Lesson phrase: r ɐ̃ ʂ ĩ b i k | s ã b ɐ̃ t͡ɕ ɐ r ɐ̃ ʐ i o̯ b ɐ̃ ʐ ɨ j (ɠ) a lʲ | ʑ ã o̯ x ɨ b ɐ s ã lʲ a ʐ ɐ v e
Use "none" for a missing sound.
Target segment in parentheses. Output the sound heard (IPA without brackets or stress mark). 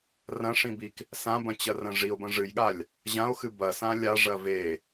ɠ